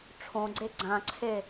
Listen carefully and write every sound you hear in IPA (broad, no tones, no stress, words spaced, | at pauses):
ʈ͡ʂʰõɡ͡ǀe ɡ͡ǀãǀʰe